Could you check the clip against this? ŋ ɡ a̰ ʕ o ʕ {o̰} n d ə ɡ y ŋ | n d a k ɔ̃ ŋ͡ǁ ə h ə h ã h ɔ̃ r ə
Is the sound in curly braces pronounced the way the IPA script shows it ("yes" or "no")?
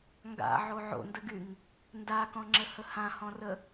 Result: yes